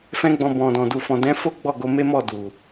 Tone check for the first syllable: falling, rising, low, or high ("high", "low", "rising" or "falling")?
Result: high